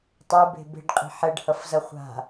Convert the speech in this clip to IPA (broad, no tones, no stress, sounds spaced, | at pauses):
tˤ ɛ b e̤ b e̤ ɖ qʼ i̤ ħ ɛ ɖ h ʌ f z ʌ χʷ a̤